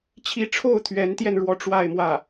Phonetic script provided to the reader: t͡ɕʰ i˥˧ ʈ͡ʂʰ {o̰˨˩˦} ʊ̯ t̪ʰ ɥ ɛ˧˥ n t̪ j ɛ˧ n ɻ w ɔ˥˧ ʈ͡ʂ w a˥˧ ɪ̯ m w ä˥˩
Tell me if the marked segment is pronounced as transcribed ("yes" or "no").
no